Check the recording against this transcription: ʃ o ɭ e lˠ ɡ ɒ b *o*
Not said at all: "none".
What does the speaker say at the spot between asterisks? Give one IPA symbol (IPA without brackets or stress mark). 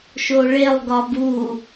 u